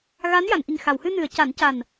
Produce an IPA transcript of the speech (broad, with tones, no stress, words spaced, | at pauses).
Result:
ɣa˧˥n ja˨˩˨nʔi˨˩ŋxa˨˩˨whɨ˧ nɨ˨˩˨ə̯ ca˨˩˦nca˨˩n